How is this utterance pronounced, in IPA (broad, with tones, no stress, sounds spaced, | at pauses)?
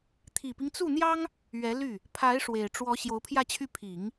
t̪ʰ i˨˩ p i˦ ŋ t͡s u˥˩ n̪ j ɑ˥ ŋ | ɥ ɛ˧˥ l y˥˩ | pʰ a˧˥ ɪ̯ ʂ w e˨˩ ɪ̯ ʈ͡ʂ w ɔ˧˥ ɕ j o˧˥ ʊ̯ pʰ j ä˥˧ t͡ɕʰ y˥˩ pʰ i˨˩˦ ŋ